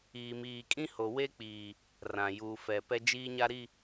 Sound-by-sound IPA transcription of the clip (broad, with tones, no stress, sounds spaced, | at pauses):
iː˨ m iː˨ kʼ ĩ˦ h o˨ w e˦ k͡p iː˨ | r ã˨ j uː˨ f ɛ˨ p ɛ˦ d͡ʒ iː˦ ɲ a˦ ɾ i˦˨